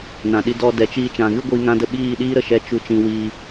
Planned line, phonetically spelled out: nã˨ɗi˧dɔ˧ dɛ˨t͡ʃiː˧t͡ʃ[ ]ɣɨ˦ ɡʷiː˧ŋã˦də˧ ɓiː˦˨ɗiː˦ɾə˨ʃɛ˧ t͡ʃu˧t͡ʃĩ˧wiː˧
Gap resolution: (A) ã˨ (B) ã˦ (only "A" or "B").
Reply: A